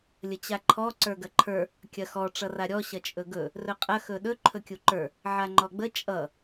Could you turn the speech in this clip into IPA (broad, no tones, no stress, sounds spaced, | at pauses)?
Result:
lʲ ə t͡ɕ a ǃʰ ɔ ǀ ə˞ ɡ ɐ ǃʰ ə˞ | kʲ ɐ x ɔ ʈ͡ʂ ʌ r a ɾʲ ɔ ɕ ɐ t͡ʃʼ ɵ ɡ ɵ | r ɵ qʼ ɐ x ɵ ɗ ɵ ǃʰ ɵ kʲ u ǃ ə˞ | ʕ a ŋ͡ǃ ɔ ɡ͡b ə t͡ʃʼ ʌ